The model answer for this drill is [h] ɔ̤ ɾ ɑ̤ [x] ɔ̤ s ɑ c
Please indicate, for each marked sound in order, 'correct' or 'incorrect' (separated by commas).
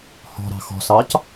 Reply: correct, correct